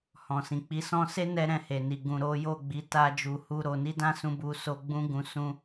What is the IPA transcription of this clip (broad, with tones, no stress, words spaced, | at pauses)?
hɔ̃˨sĩ˨k͡pi˨˦sɔ̃˦ se˦ nɛ˦ɾɛ̃˧he˨ni˨ ɡũ˨ɾo˨˦jo˦˨ɡ͡bi˨˦ ta˦d͡ʒu˧hu˦ɾo˧ ni˦dã˦sũ˧ bu˧ so˦ ɡ͡bũ˦ ɡũ˧ sũ˦